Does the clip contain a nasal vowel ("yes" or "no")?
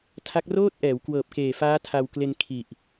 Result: no